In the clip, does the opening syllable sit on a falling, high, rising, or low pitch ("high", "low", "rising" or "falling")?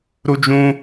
high